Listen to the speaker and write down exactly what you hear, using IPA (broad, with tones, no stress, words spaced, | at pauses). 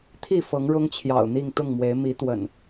t̪ʰi˥˨fɤ˨˦ŋ ɻʊ˦ŋt͡ɕʰjɑ̰˨˩ʊ̯n̪i˥˨ŋ t̪ʊ˥˨ŋmwe˨˦ɪ̯ mi˨˦t̪wə̰˨˩n